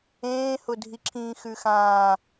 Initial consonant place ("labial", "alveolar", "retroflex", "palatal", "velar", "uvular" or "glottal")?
glottal